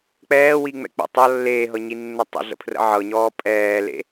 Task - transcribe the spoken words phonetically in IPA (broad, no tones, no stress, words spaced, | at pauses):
k͡pɛːwiŋ͡mɛ̰ k͡pə̰ tˤʌ lːeːɦɤɲinːə tˤə̰ɮə̰pʰrə̰ ʕɤɲɔː pʼɛːlḛ